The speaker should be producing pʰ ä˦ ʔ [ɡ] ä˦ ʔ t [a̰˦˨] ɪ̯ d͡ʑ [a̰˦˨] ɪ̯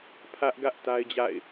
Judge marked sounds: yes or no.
yes, no, yes

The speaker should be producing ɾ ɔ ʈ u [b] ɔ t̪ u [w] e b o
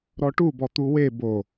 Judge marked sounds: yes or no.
yes, yes

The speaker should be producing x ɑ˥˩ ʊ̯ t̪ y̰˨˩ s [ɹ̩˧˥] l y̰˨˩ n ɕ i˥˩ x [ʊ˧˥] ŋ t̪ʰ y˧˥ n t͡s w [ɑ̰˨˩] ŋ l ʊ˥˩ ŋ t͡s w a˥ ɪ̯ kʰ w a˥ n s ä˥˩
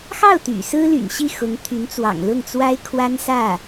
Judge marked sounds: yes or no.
no, yes, yes

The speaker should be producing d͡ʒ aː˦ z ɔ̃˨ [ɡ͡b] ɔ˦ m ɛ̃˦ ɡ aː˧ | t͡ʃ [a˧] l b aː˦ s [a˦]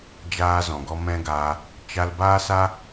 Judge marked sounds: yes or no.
no, yes, yes

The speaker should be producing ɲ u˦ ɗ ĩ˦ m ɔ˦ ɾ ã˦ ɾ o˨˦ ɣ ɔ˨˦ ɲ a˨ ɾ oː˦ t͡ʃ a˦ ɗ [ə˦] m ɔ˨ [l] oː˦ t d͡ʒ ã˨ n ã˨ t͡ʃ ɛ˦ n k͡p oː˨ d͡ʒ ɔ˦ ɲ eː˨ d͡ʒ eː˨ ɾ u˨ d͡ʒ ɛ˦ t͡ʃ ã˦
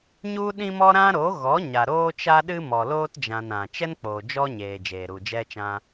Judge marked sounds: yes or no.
no, yes

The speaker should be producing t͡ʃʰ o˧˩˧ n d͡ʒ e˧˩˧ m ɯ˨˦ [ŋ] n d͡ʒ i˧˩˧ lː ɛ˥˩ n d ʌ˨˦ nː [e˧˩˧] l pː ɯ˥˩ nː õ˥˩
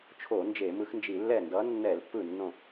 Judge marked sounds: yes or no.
no, no

